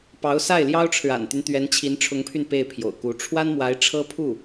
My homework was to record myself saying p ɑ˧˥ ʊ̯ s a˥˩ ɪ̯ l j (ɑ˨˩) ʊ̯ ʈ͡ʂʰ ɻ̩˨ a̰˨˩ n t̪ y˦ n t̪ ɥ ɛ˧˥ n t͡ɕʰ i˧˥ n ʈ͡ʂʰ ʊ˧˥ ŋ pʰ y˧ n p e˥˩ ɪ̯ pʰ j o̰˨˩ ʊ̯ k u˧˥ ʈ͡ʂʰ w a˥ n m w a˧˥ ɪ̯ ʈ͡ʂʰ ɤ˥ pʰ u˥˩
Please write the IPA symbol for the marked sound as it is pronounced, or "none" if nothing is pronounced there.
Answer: ɑ˥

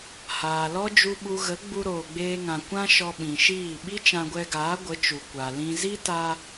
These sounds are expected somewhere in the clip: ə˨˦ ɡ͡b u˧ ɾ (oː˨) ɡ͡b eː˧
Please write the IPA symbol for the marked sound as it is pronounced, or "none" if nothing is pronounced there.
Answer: oː˨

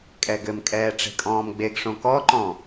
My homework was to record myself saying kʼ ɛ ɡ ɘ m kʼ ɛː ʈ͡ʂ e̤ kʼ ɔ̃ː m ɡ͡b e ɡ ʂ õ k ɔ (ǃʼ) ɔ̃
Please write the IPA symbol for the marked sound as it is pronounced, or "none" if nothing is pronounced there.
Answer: ǃ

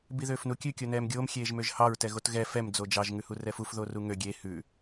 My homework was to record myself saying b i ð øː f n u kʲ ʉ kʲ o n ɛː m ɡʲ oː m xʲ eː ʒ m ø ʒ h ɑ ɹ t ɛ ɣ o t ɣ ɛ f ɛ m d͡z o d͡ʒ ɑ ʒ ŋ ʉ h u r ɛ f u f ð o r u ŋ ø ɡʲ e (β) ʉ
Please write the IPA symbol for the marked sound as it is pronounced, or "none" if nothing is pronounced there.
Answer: h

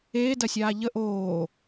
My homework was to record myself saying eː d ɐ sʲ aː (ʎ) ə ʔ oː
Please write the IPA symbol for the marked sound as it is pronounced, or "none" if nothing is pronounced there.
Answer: ʎ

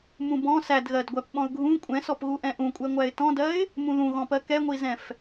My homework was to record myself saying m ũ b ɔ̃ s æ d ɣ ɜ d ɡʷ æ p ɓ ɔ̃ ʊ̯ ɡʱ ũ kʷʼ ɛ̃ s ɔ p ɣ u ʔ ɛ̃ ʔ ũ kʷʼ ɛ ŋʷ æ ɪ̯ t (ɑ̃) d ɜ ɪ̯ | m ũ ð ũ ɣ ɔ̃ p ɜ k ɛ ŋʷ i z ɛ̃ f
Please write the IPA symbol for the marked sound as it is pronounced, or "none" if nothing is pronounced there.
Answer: ɔ̃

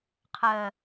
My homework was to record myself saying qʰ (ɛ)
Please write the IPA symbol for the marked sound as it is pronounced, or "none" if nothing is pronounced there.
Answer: ɜ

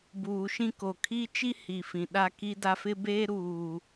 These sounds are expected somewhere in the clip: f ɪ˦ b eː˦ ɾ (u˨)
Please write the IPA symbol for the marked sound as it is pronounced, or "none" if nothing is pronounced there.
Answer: uː˨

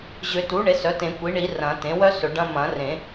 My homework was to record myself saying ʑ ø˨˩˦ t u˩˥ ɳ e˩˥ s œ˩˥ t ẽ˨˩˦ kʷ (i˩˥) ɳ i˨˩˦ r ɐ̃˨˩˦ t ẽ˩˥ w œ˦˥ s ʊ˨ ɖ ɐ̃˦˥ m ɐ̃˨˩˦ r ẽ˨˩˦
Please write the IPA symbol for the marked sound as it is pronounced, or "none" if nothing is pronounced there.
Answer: i˩˥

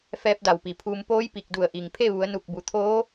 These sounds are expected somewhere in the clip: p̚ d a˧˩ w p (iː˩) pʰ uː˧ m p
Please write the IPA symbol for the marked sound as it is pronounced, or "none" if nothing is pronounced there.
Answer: i˩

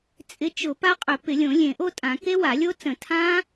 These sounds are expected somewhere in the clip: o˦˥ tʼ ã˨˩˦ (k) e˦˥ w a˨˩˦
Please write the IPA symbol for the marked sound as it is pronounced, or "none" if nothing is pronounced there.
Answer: k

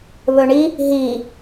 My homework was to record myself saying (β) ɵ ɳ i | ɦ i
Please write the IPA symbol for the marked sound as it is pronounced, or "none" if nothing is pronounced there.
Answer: β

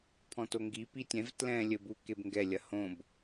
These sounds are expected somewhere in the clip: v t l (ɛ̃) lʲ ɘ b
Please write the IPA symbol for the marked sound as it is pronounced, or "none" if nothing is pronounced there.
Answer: ɛ̃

